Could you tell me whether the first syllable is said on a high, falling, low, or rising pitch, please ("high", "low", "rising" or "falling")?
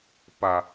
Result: low